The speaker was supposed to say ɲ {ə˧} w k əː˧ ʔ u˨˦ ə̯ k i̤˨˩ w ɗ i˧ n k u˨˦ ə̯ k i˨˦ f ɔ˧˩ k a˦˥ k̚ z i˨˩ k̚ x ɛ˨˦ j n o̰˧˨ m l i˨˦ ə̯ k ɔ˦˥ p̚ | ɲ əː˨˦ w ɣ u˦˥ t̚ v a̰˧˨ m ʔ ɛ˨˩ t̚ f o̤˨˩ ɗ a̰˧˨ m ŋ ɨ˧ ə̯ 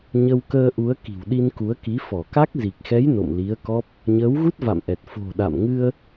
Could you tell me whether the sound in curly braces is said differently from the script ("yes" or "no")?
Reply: no